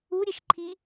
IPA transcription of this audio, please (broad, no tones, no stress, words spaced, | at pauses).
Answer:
uɾʲeʃǃʰi